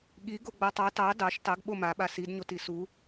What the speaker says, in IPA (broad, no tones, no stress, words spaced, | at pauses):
ɠi ɡoɡ͡batˤɑ tɑ dɑʃ tɑɡ ɓomaɓa sidɲot isu